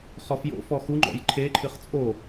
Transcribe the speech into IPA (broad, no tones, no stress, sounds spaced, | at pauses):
χ ɔ f j o̰ f ɔ x u ŋ͡ǃ ɔ̰ j ǃʰ e ǃʰ ɨ χ t͡sʼ o